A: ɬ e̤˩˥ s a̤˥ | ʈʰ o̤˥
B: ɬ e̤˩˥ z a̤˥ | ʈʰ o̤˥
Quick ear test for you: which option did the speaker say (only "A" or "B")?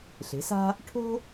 A